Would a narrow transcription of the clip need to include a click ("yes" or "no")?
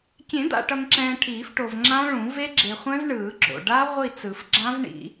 yes